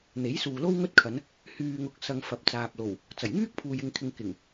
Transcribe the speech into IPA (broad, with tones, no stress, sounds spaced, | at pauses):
n̪ e˨˥ j s uː˨ l o˥ w ŋ ɵ˥ t̚ kʰ ɐ˨˧ n | h yː˨ ŋ ʊ˨ k̚ s ɐ˧ ŋ f ɐ˨ p̚ t͡s aː˨ p̚ l o˨˩ w | t͡s ɐ˨˩ j ŋ yː˥ k̚ pʰ uː˨ j ɪ˨ ŋ kʰ ɪ˨ ŋ k ɪ˨˩ ŋ